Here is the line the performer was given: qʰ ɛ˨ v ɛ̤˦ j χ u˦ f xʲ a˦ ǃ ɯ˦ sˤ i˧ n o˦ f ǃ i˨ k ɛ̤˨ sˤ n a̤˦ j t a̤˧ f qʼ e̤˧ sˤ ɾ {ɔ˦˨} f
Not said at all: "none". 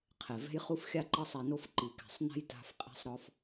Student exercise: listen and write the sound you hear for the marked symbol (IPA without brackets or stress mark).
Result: ɔ˧